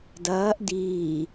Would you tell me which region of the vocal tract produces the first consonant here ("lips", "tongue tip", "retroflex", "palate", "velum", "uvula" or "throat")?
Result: tongue tip